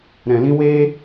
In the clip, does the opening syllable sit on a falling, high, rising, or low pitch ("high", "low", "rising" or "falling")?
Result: low